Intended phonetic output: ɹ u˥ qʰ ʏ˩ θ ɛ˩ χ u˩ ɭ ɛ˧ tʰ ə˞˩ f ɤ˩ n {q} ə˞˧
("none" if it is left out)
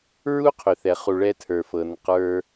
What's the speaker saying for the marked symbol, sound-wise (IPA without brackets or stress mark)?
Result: q